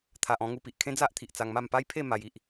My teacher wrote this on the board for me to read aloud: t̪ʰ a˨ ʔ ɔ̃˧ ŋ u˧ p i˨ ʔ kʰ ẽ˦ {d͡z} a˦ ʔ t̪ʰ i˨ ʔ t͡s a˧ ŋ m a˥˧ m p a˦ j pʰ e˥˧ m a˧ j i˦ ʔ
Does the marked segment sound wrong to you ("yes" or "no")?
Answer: no